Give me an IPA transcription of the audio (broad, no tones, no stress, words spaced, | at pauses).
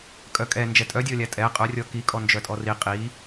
kʼœkʼɛ nd͡ʒɛtʼœdʲɔlʲa tʼɛ qʼœrʲɔ kikʼɔ nd͡ʒœtʼɔri qʼi